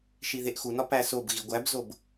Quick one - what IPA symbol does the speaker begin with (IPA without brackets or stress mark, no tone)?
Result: ʃ